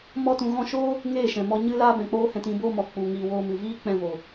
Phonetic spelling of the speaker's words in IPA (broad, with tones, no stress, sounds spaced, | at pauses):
m ɔ˧ t ũ˨ ɣ ɔ̃˧ ʃ oː˦ | ŋ eː˦˨ ʃ ɛ̃˨ m ɔ˧ ɲ ɨ˦ l aː˦ b ɛ̃˨ k͡p oː˦ h ɛ̃˧ t ĩ˧ b oː˦ m ɔ˨ k͡p u˨ ŋ iː˨ w oː˧ m ɨ˨ v iː˦ k͡p ɛ̃˧ v o˨